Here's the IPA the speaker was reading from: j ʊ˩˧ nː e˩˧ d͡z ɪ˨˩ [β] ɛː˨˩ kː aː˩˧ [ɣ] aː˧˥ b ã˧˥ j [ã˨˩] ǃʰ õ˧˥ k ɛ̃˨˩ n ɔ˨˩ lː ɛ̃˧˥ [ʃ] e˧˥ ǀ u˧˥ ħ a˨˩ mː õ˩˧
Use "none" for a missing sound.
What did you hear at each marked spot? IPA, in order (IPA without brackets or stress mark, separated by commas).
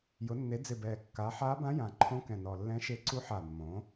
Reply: b, ħ, ã˨˩, ʃ